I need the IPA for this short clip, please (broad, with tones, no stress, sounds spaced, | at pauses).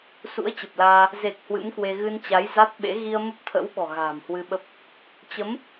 s ṵ˧˥ ə̯ t͡ɕ ə˨˩ p̚ l aː˧ | z e˨˩ k̚ h w ɨ̰˧˥ m k w e˧ ɣ ɨ˧ n t͡ɕ a˨˦ j z a˦˥ t̚ ɓ ḛ˧˥ ɣ i˧ ə̯ m ə˦˥ p̚ t̪ʰ ə̰˧˥ w ɓ ɔ̤˨˩ ɣ a̤ː˨˩ m h w ɨ˧ ɓ ə˦˥ p̚ | t͡ɕ ə˨˦ m